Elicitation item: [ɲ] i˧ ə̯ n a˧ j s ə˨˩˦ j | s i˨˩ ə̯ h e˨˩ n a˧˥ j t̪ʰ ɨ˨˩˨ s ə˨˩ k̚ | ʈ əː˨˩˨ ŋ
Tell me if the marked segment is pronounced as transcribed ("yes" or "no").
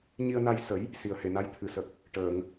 yes